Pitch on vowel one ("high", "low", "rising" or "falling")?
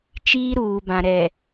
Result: high